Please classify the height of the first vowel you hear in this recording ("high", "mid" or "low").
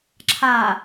low